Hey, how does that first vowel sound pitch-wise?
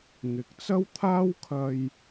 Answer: rising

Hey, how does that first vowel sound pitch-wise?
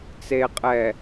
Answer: low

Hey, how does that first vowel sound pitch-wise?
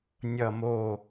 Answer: falling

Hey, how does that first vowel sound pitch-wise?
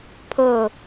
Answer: falling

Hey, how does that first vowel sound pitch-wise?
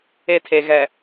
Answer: falling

